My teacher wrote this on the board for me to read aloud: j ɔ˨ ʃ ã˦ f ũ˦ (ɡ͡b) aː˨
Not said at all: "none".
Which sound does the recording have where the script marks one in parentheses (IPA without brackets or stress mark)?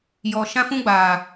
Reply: ɡ͡b